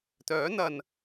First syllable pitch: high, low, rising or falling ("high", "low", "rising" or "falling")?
rising